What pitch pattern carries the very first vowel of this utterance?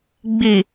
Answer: low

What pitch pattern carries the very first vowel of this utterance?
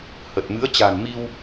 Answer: low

